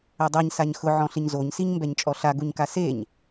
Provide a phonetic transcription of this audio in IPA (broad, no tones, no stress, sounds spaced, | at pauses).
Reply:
ɛ dˤ e ɲ s a ɲ x ʊ ʕ ɔ̃ ɬ ɪ ɲ z o ɲ s i ɲ m b ɛ ɲ t͡ʃʼ ɔ ɬ a ɡ u ɲ k a s e ɲ